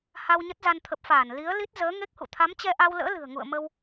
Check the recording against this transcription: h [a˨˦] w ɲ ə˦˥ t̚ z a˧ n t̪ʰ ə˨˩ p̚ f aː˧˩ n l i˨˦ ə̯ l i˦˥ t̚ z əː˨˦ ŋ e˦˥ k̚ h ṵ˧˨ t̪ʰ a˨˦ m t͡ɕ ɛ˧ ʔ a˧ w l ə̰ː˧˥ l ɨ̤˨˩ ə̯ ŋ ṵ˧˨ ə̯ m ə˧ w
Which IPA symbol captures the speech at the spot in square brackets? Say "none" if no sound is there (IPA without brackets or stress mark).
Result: a˧